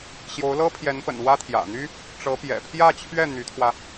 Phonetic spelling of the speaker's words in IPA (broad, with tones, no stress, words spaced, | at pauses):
ɕjo˧˥ʊ̯lɤ˥pʰjɛ˧˥npə̰˨˩n wä˥t̪ʰjä̰˨˩n̪y˥ | ʈ͡ʂɤ˧˥ pjɛ̰˨˩pʰjä˥˧t͡ɕʰɥɛ˥˩ n̪y˧˥t̪ʰwä˧